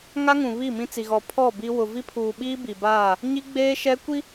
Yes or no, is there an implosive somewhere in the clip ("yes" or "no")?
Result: yes